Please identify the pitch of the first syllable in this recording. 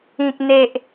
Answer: high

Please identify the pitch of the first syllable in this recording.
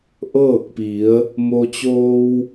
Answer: falling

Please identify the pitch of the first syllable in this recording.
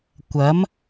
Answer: rising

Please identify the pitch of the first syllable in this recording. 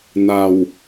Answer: low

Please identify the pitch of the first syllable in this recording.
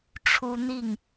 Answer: high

